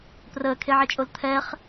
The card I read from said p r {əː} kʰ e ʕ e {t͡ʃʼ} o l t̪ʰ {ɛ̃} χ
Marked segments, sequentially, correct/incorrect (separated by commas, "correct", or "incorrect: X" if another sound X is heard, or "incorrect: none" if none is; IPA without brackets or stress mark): correct, correct, incorrect: ɛ